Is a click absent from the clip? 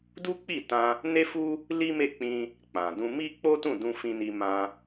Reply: yes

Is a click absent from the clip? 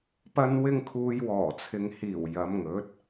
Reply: yes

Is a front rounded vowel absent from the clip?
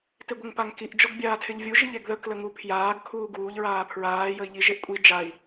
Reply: yes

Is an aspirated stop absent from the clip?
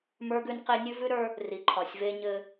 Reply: no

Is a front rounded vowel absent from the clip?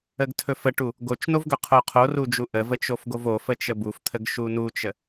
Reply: yes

